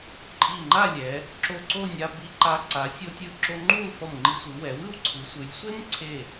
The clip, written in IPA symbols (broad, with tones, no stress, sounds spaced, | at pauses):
ǃʼ i˧˩ ŋ͡ǃ a˥˧ lʲ ɛ˩˧ | ǁ o˧˩ ǀ o˥˧ nʲ a˧ b i˧ ǃ a˧ ǀ a˩˧ sʲ o˧ tʲ ɯ˧ ǁ o˧ ŋ͡ǃ u˥˧ l f ʌ˧˩ m ŋ͡ǃ i˧ sʷ ɯ˩˧ w ɛ˩˧ w ɯ˥˧ w ǀʰ ɯ˩˧ sʷ ɯ˩˧ lʲ sʷ e˥ m ǀʰ e˧˩